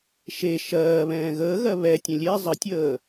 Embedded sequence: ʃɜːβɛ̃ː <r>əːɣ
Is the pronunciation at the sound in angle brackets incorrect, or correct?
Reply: incorrect: ɣ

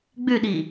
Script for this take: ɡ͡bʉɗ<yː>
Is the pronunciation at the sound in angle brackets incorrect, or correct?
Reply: incorrect: iː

